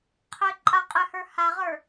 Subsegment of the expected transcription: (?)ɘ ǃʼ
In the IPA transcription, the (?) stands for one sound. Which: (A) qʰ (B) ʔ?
A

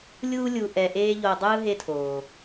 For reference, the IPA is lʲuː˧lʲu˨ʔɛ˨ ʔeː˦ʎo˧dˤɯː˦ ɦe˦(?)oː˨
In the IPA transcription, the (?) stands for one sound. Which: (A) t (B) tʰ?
B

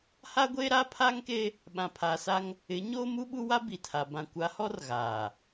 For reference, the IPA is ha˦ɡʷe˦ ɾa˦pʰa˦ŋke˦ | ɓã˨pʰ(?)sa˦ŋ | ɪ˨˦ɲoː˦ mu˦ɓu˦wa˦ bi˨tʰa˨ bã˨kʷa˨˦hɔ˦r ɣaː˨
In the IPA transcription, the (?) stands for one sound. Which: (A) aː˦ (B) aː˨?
B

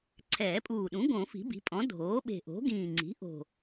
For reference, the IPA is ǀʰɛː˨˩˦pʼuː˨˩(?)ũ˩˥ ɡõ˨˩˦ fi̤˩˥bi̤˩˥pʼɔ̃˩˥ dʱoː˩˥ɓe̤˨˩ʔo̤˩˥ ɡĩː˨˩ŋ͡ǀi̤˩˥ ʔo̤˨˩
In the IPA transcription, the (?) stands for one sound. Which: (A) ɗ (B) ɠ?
A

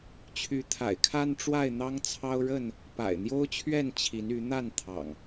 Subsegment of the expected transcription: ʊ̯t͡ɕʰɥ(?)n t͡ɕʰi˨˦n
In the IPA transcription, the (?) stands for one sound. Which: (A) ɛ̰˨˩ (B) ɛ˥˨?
B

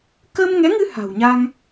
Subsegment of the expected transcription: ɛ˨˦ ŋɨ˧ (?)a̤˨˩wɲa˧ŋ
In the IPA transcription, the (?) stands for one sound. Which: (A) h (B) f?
A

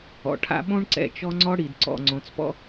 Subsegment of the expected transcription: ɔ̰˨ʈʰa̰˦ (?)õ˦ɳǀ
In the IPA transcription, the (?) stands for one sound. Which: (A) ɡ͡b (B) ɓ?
B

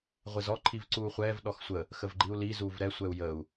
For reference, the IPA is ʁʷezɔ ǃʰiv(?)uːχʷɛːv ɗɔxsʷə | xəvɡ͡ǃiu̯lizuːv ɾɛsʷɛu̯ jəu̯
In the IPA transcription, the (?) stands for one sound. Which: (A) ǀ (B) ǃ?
A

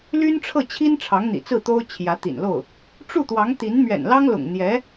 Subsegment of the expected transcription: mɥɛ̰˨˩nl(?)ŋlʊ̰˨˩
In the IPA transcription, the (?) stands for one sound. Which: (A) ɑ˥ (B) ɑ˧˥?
A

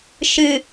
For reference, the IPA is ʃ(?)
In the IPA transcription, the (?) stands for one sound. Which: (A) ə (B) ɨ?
B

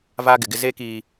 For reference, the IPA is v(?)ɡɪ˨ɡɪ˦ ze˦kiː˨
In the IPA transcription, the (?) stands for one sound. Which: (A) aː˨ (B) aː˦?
B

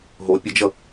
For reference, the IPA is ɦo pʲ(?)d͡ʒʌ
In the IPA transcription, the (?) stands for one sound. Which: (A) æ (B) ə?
B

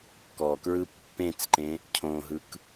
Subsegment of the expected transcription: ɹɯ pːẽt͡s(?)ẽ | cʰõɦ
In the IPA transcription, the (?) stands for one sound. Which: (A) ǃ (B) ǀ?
A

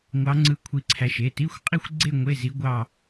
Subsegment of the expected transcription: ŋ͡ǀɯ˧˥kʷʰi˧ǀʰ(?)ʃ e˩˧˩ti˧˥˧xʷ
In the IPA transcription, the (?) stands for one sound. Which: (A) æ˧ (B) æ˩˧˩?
A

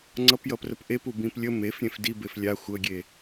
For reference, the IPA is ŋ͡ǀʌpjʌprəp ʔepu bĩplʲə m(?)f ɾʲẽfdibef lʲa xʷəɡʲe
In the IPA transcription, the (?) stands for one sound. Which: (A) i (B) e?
B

